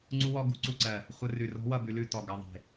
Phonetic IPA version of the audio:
ŋ͡ǀ u˦˥ w ɔ˦˥ ɡ ṳ˧ ǀ u˥˩ ǀ ɜ˧˩ | χʷ ə˧ r ʉ˧˩ r ɔ̤˦˥ w ʌ˥˩ b ʉ˧ l ʉ˥˩ t ɔ˧˩ ɡ ʌ˩˧˩ ðˤ e̤˧˩

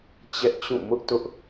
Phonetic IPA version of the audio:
t͡ɕ ɛ˦ ʔ t͡ɕ ũ˦˨ m ʊ˦ ʔ t ʊ˦ ʔ

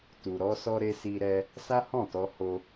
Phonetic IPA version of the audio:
t u˨ ɾ ɔ˧ s ɔ˧ ɾ e˧ s i˧ ɾ ɛ˧ | s a˦ h ɔ̃˦˨ t ɔ˧ h o˧

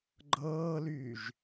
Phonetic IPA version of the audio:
ɡ͡ǃ ɤː l yː ʒ

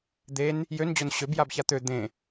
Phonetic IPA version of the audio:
d̪ e n | j ø n d͡ʑ o n ɕ ø b j a b ç a t̪ ø d̪ ẽ

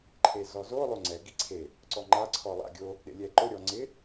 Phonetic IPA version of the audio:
ǃʰ e z ɔ z o lˠ o ŋ͡ǀ ɛ ɡ i ǀʰ e | ǀ ɔ ŋ͡ǃ a ǀʰ ɔ lˠ a̰ ɡʲ o | ɗ ḛ lʲ ɛ ǃ ʊ ɾʲ ɔ ŋ͡ǀ ɪ

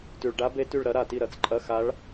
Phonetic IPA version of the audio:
t ʉ˩ ɭ ɖ a˧˥ b e˧˥ t ʉ˧˩ ɭ ɾ ɐ˧˥ ɾ a˧˩ t i˥˩ ɾ ɐ˧˥˧ t͡s ǃʼ ɐ˧˥˧ x a˧˥ ɭ

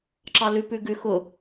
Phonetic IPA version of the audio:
ǁ ɑ l ʉ p ʉ ɡ ʉ x ʊ

